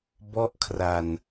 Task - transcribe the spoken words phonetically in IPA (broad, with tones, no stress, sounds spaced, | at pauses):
b ɔ˥˩ ʔ kʰ r a˧ n